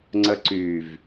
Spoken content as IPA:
ŋ͡ǀəǀyv

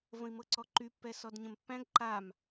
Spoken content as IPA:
və̃i̯mɤǀɔǃy pːɛsɔdɲə̃mpːæ̃ɡ ǃam

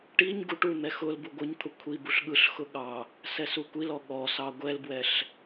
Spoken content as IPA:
ʈiɲ ɡuʈun̪ɛ xʊl buɡʷɯɲt̪ʰʊ kʷʰibuɬ ɠɯɬxʊ ɠɑ | sɛsukʷilɔ ɠɔsɑ ɡʷɛlbwɛɬ

